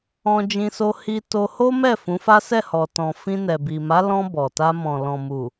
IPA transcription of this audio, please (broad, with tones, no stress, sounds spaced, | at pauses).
ɔ̃˧ d͡ʒ ĩ˧ s o˧ h i˧ t o˧ h o˦ m ɛ˦˨ f ũ˨˦ f a˦ s ɛ˦˨ h ɔ˨ t ɔ̃˨ f ĩ˧ n ɛ˨ b i˨ m a˨˦ l ɔ̃˧ b ɔ˨ t a˧ m ɔ̃˨ l ɔ̃˨ m u˨